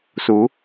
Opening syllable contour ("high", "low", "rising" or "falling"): rising